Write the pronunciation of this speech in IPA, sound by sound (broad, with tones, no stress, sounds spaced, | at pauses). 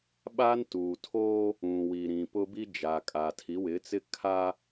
ɓ a˦ n t uː˨ tʰ oː˦ | ũ˨ w i˨ ɾ ĩ˨ p ʊ˦ b i˦ d͡ʒ a˨ kʼ a˨ tʰ i˨˦ w ɪ˨˦ t͡s ɪ˦ kʰ a˦